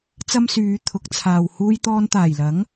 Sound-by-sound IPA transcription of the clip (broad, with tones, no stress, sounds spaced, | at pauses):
t͡s ɐ˥ m s yː˨˧ t̪ʰ ʊ˨˥ k̚ t͡sʰ aː˨ w h uː˧ j t̪ ɔː˧ n t̪ aː˨˩ j l ɐ˨˥ ŋ